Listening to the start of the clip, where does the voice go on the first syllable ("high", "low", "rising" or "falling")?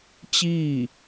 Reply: falling